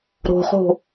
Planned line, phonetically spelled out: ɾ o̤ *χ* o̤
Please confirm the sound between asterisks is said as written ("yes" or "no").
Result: yes